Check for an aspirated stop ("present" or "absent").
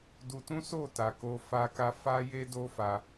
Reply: absent